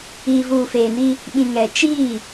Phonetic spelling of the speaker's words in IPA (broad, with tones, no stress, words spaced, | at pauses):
iː˨vuː˨feː˨ni˦ | ɓĩ˨ŋɛ˨ t͡ʃiː˦˨